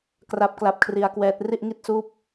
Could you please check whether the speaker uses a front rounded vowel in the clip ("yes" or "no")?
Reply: no